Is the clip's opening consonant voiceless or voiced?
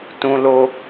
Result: voiceless